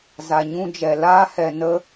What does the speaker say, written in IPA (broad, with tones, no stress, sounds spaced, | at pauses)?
z a˨ ɲ ũ˧ d͡ʒ ɛ˨ l aː˧ h ɛ˨ n ə˧